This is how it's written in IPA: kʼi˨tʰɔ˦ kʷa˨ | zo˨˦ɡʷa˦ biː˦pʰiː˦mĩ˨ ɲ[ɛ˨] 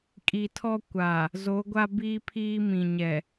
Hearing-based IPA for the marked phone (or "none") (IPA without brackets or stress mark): ɛ˨